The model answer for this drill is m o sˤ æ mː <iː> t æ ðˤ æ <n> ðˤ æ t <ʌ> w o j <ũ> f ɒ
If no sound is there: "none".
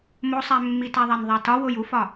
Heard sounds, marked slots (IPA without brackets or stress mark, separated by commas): i, n, ɒ, u